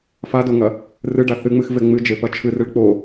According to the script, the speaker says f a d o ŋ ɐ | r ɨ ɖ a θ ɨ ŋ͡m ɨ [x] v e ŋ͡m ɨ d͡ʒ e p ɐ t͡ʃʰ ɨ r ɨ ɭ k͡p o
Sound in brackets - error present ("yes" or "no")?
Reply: no